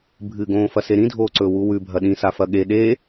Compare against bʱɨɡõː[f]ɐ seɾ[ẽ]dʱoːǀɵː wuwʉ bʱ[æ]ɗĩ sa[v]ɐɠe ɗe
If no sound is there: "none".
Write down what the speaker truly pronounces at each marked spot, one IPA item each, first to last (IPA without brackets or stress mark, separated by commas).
f, ĩ, ɐ, f